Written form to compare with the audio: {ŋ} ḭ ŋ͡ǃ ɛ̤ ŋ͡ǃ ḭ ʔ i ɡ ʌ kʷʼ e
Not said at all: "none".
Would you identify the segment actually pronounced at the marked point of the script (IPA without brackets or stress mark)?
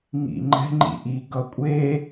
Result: ŋ